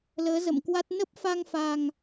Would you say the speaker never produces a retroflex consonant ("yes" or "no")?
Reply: yes